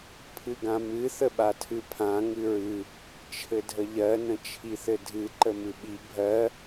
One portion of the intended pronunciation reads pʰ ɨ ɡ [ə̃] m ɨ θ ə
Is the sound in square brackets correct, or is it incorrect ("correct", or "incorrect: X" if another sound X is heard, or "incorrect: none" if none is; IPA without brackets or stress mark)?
incorrect: ã